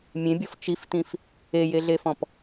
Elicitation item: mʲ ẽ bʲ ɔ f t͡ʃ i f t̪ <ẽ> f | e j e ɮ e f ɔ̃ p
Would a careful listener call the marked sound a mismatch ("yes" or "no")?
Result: yes